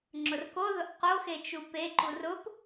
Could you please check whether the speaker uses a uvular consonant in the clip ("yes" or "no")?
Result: yes